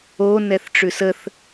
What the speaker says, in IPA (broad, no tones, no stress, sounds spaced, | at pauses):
o n ɛ θ ʈ͡ʂ ʉ s ə θ